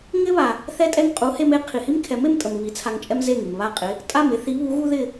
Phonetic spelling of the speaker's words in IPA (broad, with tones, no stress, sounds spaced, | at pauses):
ŋ ɪ˥ β a˩ | θ ɛ˥ tʼ ɛ˥ ŋ qʼ u˩˥ h e˧ m e˩˥ qʰ i˩ h i˥ m kʰ ɛ˩˥ m e˧ m tʼ ə˩ m β i˩˥ t͡sʰ a˧ ŋ t͡ʃʼ ɛ˥ m z e˥˩ ŋ i˩ m β a˥˩ qʼ ɪ˩˥ | tʼ a˥˩ m ɪ˩˥ θ i˩˥ β u˩˥ ɣ u˥ ð ɪ˥˩